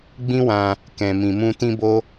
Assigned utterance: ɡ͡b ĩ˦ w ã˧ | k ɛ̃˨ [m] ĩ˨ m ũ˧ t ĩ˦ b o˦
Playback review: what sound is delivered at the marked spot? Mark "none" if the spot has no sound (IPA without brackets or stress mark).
m